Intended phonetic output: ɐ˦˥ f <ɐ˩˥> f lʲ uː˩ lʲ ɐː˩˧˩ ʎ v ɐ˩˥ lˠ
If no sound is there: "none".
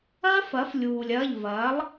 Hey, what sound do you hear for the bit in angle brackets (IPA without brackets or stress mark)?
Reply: ɐ˩˥